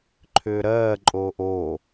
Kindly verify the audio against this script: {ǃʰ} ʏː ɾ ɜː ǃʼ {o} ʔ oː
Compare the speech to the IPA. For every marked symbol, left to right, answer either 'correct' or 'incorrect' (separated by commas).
correct, incorrect